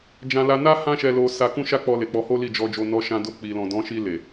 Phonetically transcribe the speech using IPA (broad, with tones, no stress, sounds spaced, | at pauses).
d͡ʒ ã˧ l a˧ n a˦ h ã˦ ʃ ɛ˧ l o˧ s a˧ k ũ˦ ʃ a˦ k͡p ɔ˧ l e˨ k͡p ɔ˧ h o˦ l i˦˨ d͡ʒ ɔ˧ d͡ʒ o˧ n ɔ˧ ʃ ã˧ d o˧ k͡p i˨ l ɔ̃˨ d ɔ̃˨˦ ʃ i˧ l e˨